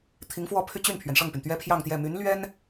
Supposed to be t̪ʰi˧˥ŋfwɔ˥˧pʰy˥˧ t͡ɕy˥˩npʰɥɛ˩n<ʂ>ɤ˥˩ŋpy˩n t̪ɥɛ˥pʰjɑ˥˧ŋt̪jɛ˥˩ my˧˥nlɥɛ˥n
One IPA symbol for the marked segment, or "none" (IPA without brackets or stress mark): ʂ